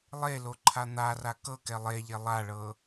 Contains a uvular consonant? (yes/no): no